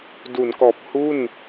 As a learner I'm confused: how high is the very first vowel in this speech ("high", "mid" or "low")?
high